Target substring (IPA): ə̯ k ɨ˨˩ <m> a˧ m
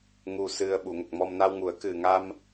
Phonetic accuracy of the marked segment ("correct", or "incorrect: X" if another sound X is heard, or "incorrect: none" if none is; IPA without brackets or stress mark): incorrect: ŋ